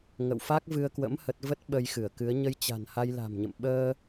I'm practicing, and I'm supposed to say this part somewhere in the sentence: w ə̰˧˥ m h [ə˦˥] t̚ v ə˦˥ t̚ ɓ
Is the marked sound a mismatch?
no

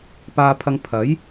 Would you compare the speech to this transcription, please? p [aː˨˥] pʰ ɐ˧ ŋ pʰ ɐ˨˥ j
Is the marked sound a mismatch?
yes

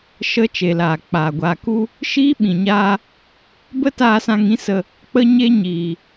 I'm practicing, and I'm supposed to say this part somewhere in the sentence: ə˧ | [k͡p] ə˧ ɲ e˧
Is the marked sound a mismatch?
no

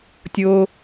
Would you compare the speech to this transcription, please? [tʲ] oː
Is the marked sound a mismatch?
no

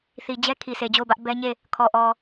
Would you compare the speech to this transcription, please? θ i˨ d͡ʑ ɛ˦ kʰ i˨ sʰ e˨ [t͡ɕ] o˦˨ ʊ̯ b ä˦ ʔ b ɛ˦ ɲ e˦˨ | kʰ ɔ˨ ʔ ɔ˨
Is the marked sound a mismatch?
yes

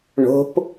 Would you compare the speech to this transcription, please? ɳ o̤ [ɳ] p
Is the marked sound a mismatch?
yes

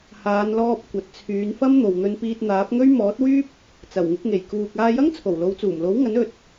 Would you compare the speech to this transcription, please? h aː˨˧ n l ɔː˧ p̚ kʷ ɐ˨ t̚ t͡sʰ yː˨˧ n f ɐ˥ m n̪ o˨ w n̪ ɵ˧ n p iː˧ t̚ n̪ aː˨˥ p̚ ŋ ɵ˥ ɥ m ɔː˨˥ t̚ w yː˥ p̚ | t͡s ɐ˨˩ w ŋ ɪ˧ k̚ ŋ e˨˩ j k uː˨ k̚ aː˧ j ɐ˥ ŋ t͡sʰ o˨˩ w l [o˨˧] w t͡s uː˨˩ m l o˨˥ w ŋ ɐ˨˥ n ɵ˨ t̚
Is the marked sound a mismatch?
no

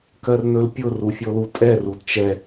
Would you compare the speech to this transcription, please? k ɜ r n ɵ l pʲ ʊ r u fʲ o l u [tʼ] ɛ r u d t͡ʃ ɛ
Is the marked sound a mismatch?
no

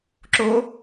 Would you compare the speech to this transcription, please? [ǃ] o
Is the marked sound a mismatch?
yes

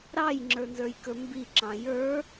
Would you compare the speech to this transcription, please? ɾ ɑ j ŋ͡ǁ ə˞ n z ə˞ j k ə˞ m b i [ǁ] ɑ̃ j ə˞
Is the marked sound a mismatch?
no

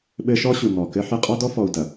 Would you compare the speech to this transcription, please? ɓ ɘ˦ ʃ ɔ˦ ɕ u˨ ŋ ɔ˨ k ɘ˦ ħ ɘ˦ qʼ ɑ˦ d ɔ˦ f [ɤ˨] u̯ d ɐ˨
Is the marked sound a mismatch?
yes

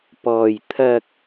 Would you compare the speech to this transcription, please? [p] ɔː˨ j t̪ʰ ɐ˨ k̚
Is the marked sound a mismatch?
no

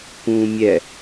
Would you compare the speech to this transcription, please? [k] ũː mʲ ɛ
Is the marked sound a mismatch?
no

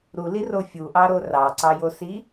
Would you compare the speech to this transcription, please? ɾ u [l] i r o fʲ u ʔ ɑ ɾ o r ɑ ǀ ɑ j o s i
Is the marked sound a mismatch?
no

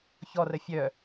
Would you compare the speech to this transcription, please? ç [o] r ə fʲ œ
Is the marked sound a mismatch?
yes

